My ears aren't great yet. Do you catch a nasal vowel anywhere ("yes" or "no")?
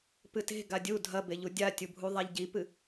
no